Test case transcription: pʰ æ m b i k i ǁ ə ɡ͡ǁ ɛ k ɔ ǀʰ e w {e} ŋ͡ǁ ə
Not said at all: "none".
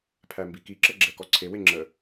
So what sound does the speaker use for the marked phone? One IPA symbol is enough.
e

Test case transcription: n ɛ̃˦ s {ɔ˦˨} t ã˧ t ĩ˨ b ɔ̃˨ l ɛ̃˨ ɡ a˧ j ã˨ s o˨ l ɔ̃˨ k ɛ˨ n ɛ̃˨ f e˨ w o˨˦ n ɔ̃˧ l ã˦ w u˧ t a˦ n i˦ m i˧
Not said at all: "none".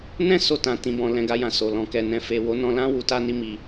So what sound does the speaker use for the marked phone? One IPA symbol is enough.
o˦˨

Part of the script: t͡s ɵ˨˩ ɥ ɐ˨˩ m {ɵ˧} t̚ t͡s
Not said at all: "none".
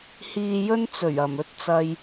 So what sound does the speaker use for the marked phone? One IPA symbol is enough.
ɵ˧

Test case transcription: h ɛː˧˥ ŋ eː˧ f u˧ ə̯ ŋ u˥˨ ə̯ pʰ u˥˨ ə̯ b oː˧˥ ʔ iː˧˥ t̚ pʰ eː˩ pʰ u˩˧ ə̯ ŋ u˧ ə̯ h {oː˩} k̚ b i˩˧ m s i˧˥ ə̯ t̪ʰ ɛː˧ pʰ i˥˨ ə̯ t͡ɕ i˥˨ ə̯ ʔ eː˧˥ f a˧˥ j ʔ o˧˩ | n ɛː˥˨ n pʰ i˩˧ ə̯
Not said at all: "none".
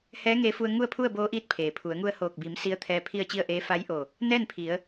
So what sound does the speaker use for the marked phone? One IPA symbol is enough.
oː˧˩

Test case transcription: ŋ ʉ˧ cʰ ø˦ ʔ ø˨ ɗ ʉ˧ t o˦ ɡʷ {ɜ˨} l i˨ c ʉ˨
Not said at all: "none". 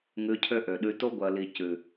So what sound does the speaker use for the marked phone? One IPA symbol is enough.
ɜ˨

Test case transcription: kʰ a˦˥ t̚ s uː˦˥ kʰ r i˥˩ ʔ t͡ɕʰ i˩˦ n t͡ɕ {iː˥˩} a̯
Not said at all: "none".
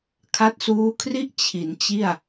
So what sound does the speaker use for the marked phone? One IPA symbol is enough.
i˥˩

